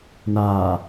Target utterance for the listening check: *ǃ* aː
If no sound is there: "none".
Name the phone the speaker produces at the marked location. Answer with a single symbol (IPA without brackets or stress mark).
n